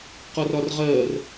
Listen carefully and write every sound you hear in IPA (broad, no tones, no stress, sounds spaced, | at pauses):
q ɔ r ɒ r ʁ ɜː r